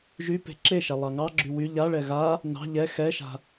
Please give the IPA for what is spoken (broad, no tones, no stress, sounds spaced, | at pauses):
ʒ y p e̤ ǁ e ʃ ɛ lˠ ɑ ŋ ɑ ɡ͡ǁ y w y ʎ a ɭ ɛ ɣ a | n ɑ̤ ʎ ɛ x ɛ ʃ a̤